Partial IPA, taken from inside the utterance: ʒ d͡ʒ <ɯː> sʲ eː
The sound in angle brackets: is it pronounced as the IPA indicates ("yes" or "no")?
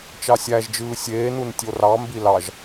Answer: yes